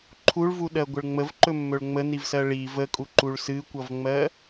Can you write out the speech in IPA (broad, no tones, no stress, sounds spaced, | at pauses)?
ǃʰ u ɭ v u ɗ ɜ ɡʷ ə ɭ ŋ͡m ə v ǃ ɵ mː ɵ ɭ ŋ͡m ə n i v s ɜ ɭ i v ə kʼ u ǃ u ɭ s ɨ kʷ ʌ v ŋ͡m ɜ